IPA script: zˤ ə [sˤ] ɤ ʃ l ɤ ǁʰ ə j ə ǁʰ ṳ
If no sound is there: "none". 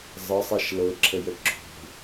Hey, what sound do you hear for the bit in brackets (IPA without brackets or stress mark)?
sˤ